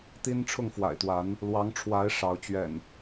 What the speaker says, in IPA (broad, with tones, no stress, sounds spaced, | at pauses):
t̪ i˦ n ʈ͡ʂʰ ʊ˥˨ ŋ f w a̰˨˩ ɪ̯ t̪ w a˨˦ n | l w ɑ˨˦ ŋ ʈ͡ʂʰ w a˨˦ ɪ̯ ʂ ɑ˨˦ ʊ̯ t͡ɕ ɥ ɛ̰˨˩ n